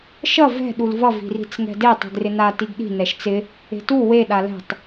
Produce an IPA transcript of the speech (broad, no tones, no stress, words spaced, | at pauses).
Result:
ʃʌ vɛ̤ ɗulvʌ vi̤ri̤t͡sŋɛ̤de tˤi̤ɡrɪna tiɡɗi̤ nɛʃt͡sɪ | e̤tu we ɗalɛ̤tˤ